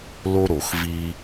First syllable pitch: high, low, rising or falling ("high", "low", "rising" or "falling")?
high